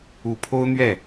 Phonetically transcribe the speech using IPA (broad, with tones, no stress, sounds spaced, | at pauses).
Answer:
u˨˩ pʰ o˥ ʊ̯ n̪ ɥ ɛ˥˩